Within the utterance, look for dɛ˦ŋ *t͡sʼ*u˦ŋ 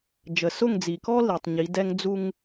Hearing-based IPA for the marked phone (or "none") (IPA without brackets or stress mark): d͡z